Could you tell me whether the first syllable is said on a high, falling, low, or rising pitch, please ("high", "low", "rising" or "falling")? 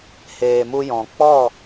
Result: low